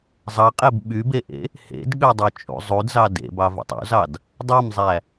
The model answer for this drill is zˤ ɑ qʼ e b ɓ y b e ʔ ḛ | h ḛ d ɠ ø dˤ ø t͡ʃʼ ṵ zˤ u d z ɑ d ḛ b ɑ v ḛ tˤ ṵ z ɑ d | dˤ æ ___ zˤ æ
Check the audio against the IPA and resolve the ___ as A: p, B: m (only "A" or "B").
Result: B